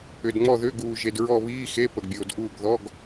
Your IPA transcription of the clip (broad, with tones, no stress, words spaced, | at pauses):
ʏ˨dŋ͡mɔ˦˨ðʏː˧˥˧ɡuː˨ ʒe˨dɹɔ˦˨βiː˧˥˧xe˧˥˧ pə˨ɡbʲoː˨dʔuː˦˨ɡ ðɔ˧˥˧ɡ